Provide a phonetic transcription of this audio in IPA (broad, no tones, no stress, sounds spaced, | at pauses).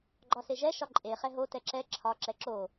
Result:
ɡ͡ǃ ɒ s e ʒ ɛ ʃ ɒ ǃʼ e χ ɛ ɦ o t ɛ ǁ ɛ ǁʰ ɒ ǁ ɛ ǁ o